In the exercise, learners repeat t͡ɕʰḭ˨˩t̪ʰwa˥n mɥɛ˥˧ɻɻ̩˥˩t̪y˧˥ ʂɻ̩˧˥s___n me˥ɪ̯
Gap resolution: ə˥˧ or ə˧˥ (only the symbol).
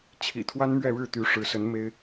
ə˧˥